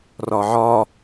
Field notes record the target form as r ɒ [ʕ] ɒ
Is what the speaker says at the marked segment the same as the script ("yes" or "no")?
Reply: yes